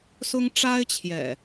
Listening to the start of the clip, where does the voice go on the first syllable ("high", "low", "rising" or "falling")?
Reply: high